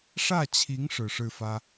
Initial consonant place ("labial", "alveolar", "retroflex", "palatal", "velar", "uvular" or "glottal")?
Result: retroflex